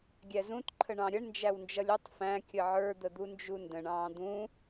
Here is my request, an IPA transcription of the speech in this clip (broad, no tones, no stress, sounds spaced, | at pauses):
ɡʲ æ z ũ t ǃʰ ə ɳ ɑ̃ ɾʲ ə ɳ n d͡ʒ æ w n d͡ʒ ʌ lʲ ʌ tˤ f æ̃ kʲ ə ʕ ə˞ d̪ ə d̪ u n d͡ʒ u n d ə̃ ɳ ɑ̃ː d̪ ũ